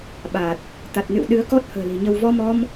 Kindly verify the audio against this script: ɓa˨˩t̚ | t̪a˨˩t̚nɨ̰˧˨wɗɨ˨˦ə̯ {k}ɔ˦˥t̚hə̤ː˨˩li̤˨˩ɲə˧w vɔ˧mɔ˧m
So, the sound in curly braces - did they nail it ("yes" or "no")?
yes